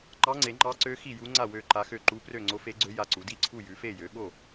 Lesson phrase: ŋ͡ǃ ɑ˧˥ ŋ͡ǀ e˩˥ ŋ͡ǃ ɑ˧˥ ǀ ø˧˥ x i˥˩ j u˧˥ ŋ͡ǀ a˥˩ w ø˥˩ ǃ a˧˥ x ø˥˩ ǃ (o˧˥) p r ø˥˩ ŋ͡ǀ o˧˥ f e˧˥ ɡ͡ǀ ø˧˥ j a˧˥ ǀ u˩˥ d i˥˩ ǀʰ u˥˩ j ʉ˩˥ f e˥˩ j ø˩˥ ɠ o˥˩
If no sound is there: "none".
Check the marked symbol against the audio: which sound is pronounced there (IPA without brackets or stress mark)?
u˧˥